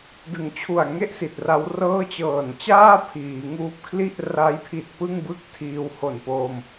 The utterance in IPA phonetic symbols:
dɯ˨˩ŋ t͡ɕʰu˨˩a̯ŋe˥˩ʔ si˨˩t̚ra˦˥wrɤː˥˩ t͡ɕɤː˨˩nt͡ɕaː˥˩ pʰiː˩˦ŋuː˦˥p̚ kʰli˥˩ʔ ra˦˥jpʰi˨˩t̚ pɯ˥˩ŋbɯ˥˩k̚ tʰiː˧who˨˩npo˧m

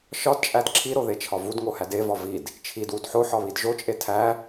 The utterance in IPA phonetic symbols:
ʃɒdt͡ʃʼæd ǁʰiɾoðet͡ʃʰɒ vudŋohæd evɒ vid | t͡ʃʰidwud ħoħɒβid ʒot͡ʃʼe tʰæ

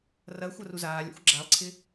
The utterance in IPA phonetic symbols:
rɐ xʷɐruzaːlʲa̰xʷ ɡ͡ǁalˠǀʰɪ

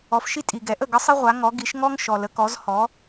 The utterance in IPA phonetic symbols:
ɔ˩˥fʃi˥ tʼi˩ɡɛ˩˥ʔə˥˩ ɡə˥sˤi˥ʁʷa˩˥ŋɔ˩˥ ɡi˩˥ʃ ŋɔ˥ŋ ʃɔ˩lə˩˥kɔ˩˥z hɔ˩˥

